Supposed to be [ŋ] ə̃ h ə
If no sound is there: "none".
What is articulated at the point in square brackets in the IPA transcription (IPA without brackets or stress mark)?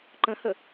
ǃ